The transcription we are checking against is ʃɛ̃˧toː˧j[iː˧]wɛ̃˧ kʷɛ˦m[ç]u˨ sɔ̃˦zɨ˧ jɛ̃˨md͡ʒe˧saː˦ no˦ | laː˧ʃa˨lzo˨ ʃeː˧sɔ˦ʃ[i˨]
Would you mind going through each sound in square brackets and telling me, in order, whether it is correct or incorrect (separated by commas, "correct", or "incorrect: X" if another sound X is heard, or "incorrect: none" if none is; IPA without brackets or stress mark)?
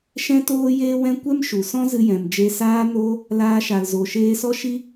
incorrect: eː˧, incorrect: ʃ, incorrect: i˦